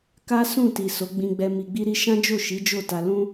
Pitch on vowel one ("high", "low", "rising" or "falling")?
high